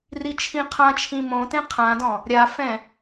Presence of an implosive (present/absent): absent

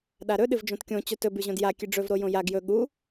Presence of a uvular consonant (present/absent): absent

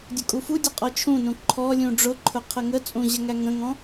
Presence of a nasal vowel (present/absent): present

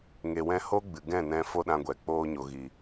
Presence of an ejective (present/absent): absent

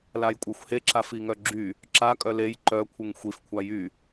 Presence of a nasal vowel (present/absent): absent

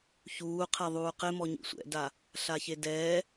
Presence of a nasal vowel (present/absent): absent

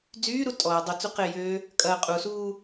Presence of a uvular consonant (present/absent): present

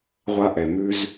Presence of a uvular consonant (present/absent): present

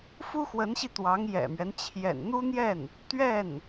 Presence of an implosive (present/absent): absent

